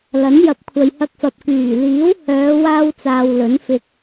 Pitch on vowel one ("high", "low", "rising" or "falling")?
rising